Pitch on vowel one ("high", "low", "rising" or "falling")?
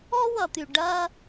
high